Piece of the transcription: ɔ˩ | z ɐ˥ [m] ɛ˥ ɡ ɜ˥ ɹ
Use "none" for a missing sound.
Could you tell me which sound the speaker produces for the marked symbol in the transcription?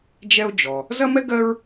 m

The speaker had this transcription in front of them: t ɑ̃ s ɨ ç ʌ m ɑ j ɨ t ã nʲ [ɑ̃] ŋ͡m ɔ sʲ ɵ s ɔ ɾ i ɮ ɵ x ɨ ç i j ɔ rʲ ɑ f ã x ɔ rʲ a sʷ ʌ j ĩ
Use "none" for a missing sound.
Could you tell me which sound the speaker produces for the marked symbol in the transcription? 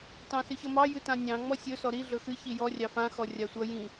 ɑ̃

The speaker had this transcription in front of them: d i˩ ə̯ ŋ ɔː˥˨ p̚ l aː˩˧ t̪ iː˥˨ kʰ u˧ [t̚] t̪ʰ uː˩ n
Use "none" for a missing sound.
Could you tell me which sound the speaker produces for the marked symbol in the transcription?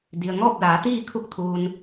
k̚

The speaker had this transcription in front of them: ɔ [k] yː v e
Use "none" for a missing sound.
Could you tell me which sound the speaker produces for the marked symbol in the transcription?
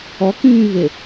k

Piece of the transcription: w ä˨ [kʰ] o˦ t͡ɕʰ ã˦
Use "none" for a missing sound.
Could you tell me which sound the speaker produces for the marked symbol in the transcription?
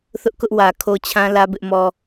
kʰ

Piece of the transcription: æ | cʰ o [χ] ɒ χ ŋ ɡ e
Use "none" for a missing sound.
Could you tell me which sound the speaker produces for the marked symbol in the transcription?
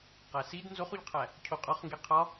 qʼ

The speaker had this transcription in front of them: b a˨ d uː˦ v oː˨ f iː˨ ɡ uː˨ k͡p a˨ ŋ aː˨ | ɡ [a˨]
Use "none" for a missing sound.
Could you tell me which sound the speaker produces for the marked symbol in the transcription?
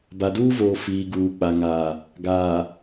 aː˨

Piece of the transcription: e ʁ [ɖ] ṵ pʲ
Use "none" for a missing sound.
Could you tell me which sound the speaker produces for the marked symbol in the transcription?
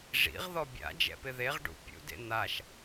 ɖ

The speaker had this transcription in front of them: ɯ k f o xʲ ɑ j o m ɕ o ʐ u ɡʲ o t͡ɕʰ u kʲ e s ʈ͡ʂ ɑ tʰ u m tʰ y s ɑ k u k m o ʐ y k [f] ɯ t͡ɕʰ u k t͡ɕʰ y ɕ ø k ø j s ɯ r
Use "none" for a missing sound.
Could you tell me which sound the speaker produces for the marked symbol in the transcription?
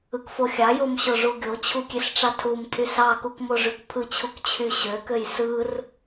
pʰ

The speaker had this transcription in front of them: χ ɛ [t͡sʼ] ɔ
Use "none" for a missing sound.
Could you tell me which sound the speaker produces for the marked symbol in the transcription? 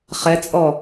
t͡sʼ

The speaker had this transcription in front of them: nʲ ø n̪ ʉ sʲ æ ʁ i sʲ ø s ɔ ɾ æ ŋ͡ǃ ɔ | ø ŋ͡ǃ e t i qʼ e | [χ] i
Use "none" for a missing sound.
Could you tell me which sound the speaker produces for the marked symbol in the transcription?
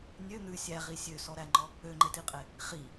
χ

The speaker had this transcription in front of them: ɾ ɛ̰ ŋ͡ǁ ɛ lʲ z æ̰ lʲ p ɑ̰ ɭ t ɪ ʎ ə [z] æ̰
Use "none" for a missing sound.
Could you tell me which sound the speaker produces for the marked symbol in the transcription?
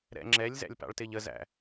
z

